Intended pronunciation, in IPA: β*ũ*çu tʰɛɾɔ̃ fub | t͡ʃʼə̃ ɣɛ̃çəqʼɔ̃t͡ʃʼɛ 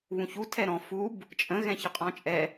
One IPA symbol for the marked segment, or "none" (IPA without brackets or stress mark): ũ